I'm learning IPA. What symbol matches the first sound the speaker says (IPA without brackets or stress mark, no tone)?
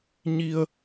ɲ